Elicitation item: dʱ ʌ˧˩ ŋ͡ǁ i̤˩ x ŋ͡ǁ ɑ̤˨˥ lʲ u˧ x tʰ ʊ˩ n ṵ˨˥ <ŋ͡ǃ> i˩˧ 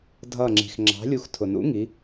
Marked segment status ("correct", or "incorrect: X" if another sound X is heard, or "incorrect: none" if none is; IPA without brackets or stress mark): incorrect: ŋ